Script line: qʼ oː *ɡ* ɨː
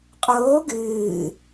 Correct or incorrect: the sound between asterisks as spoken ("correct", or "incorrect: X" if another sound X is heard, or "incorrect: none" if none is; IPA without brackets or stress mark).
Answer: correct